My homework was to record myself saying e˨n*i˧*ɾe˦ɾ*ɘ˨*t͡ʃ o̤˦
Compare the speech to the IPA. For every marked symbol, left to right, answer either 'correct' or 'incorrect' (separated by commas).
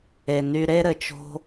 incorrect, correct